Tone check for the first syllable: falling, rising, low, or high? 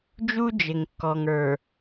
high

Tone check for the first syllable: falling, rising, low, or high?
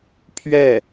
falling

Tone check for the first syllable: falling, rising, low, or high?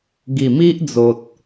low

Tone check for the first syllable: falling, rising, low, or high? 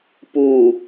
low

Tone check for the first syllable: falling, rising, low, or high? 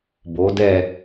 rising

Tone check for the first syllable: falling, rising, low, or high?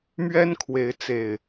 high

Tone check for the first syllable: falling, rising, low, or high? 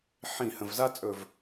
falling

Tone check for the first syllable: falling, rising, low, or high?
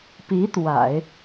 rising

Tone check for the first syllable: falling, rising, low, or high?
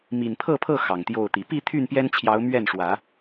low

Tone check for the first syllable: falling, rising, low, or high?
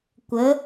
rising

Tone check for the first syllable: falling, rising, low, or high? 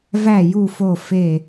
falling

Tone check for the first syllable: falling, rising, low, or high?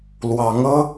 rising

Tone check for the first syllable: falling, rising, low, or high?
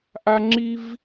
high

